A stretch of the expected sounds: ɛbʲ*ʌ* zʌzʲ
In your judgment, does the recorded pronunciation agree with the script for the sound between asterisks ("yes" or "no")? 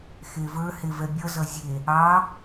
yes